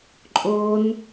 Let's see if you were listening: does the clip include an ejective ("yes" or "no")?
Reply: yes